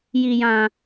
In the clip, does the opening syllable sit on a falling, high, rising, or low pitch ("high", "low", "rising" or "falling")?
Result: low